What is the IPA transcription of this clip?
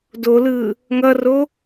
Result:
d o l ɯː | ŋ ʌ r o

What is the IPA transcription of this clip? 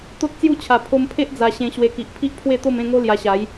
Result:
t̪ o˦ t̚ t͡s j u˥˧ t͡ɕʰ a˨˩ pʰ o˧ m pʰ e˦ ʔ d͡z a˧ ɕ ẽ˧ ɕ w e˧ k i˨ ʔ pʰ i˦ ʔ pʰ w e˥˧ t̪ o˥˧ m ẽ˥˧ ŋ o˦ l j a˧ ɕ a˨˦ j

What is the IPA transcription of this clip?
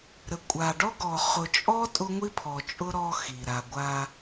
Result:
ɾ ə˨ kʷʼ a˨ ɖ ɔ˦ ɡ ɔ˨ χ ʊ˨ t͡ʃʼ ɔ˦ tʼ ʊ˦ ŋʷ i˦ pʰ ɔ˨ t͡ʃʼ ʊ˦ ɾ ɔ˦ x i˨ ɾ a˨ ɡʷ a˦

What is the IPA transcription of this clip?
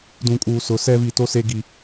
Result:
d ũ˨ kʼ uː˨ s ʊ˨ s ɛ˦ v i˨ t o˦ s e˦ ɡ i˦

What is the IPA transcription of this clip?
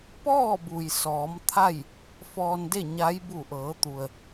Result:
p ɔː˥˨ b u˩ j s ɔː˩˧ m t̪ʰ a˥˨ j | f ɔː˧ n d e˥˨ ɲ a˧˥ j b u˧˩ ʔ ɤː˩˧ t̪ u˩ ə̯

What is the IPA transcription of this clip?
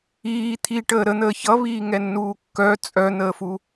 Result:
iː t̪ʰ i ʈ əː ɾ ə n̪ əː ç ʌ β iː ŋ ɛ nː uː kː œ t͡sʼ œ n̪ əː f u

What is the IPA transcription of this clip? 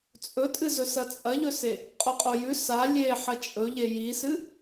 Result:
t͡sʼ ɵ tʼ ɨ z ɵ s ɐ t͡sʼ ɐ ʎ ɵ s e | qʼ o qʼ o j ʉ s a lʲ e ħ ɐ t͡ʃʼ ɵ ʎ e j i s ɨ

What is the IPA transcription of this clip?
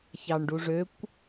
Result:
ç ɑ ɳ ɖ u ʐ ø kʷ

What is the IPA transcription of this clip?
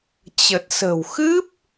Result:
t͡ɕ ə˨˩ t̚ s ə̤˨˩ w x ɨ˦˥ p̚

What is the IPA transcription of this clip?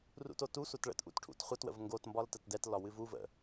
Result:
r ṵ t o t u sʷ ɜ t ɭ ə̰ t ʔ ṵ t ʈʰ ṵ t χʷ ə t w ə̰ v ŋ ɡ o t m b ɒ l t ə t d ɛ t l ɒ w ɨ v u v ə̰

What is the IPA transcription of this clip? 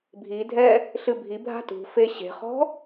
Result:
bʱ i dʱ ɛ | ɬ ɨ bʱ i bʱ a̤ t ṳ f e ɕ e̤ χ ɔ̤

